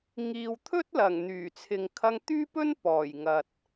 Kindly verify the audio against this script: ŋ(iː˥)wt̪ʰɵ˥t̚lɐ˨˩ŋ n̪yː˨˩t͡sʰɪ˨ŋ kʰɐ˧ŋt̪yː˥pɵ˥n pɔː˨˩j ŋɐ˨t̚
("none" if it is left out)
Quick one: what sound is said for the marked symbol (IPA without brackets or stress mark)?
iː˨